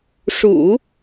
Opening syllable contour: low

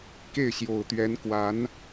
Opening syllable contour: falling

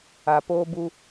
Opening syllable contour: low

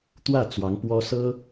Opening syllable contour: falling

